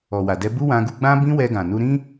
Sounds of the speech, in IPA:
ɔ˨ w a˨ d ɛ˧ b u˦ w ã˧ ɡ u˧ ɡ͡b ã˦ b ĩ˦ w ɛ˧ ɡ ã˨ n u˧ ɾ ĩ˦

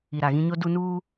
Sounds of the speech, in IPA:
i˨ ɾ a˨ ɣ ĩ˦ ɲ o˦ d u˦ n uː˦

